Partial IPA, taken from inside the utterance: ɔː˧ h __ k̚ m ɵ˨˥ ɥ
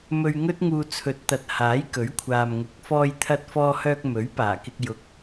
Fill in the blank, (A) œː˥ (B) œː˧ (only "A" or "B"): B